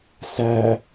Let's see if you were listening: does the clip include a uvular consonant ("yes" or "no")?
no